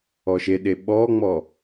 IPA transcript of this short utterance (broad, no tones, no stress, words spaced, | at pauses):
ɔʃeɗe ɓɔŋ͡mɔ